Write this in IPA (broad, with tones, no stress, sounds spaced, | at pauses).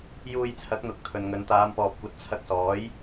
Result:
j uː˧ j t͡sʰ ɐ˨˥ k̚ n̪ ʊ˨ k̚ t̪ʰ ɵ˨ n ŋ ɵ˨˧ n t̪ aː˨˧ m p ɔː˨ p̚ kʷ ɐ˨ t̚ t͡sʰ ɐ˧ k̚ s ɔː˨˥ j